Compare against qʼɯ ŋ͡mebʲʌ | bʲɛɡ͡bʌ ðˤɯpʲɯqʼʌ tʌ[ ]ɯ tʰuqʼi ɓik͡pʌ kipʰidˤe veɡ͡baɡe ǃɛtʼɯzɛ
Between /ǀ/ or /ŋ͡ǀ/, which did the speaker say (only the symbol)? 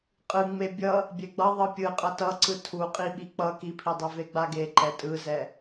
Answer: ǀ